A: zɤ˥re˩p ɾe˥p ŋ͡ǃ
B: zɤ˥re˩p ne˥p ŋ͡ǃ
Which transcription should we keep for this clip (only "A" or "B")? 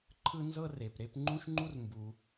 A